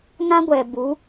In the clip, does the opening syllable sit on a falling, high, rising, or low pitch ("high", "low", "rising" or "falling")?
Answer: high